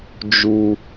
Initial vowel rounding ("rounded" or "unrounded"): rounded